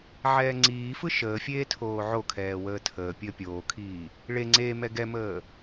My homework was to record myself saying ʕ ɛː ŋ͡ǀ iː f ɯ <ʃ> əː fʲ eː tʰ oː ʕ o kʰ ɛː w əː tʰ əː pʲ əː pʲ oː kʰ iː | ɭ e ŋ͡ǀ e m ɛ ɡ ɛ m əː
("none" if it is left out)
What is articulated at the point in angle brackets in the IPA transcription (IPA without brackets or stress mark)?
ʃ